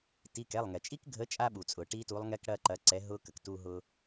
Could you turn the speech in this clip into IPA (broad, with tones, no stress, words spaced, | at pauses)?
ti˩˧˩kɛ˩˧˩lˠŋɛ˩t͡ʃʼi˦˥k ɡʱə˨˥t͡ʃʼa˧ɓu˩t͡sʼʊ˩ ʈi˦˥tu˨˥lˠŋɛ˦˥k ɽɐ˩˧˩ ǃɐ˨˥ǀɛ˨˥ ɦʊ˦˥kə˩k tu˧ɦʊ˧